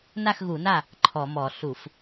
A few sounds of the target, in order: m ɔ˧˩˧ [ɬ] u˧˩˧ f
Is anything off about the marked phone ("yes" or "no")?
no